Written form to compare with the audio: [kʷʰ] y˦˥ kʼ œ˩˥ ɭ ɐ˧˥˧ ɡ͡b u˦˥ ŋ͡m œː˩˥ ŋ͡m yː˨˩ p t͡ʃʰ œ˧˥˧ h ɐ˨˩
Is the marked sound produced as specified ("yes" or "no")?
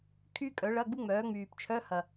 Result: no